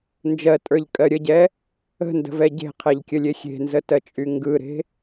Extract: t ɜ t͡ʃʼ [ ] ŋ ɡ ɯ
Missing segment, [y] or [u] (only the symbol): y